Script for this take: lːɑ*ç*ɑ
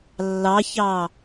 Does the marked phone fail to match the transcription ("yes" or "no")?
no